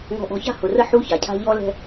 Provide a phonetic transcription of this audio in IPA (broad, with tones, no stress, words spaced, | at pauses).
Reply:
ŋɔ̤˨ʔɔ̤˨ça̤˦ hʊ˨rə˦ ħu˦ça˨cʰa̤˦ ʎɔ˦lɛ̤˦